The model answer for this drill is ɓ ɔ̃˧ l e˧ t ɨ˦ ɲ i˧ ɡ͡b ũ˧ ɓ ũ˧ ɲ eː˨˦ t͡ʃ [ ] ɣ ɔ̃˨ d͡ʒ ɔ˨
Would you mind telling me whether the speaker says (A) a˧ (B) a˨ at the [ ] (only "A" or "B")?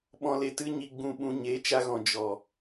A